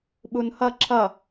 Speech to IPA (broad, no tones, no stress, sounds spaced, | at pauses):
ɓ u n h ʌ ǁʰ ʌ